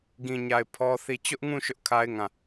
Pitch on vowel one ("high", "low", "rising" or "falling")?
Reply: low